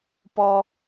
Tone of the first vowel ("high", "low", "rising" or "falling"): high